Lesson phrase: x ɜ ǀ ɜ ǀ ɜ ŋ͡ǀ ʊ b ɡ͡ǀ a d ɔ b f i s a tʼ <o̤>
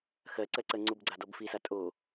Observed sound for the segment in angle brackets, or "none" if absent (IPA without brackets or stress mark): o